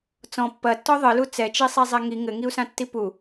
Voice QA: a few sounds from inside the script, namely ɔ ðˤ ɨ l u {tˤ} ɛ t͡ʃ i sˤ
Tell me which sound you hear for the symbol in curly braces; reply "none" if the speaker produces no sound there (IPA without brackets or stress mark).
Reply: t͡s